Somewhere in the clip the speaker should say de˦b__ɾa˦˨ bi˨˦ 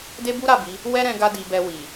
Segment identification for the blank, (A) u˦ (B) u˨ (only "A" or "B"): A